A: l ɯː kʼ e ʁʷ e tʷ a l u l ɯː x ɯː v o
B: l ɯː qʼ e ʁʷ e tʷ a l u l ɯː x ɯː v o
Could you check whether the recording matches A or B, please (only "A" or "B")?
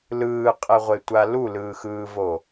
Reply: B